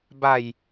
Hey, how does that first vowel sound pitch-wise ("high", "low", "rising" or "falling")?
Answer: low